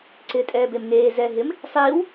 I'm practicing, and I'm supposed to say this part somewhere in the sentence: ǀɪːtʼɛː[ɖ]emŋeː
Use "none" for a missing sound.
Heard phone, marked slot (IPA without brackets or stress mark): b